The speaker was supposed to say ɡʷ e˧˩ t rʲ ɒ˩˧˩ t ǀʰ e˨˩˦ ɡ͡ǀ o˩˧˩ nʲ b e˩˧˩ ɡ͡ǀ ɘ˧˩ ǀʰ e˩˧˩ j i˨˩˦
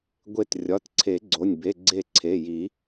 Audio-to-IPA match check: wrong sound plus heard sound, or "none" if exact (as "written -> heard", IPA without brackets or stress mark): ɘ˧˩ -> e˧˩